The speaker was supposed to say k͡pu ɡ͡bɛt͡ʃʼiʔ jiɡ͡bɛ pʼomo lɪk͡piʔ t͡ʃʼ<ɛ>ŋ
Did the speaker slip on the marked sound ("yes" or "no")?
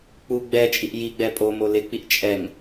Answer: no